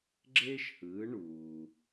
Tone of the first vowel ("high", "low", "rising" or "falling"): high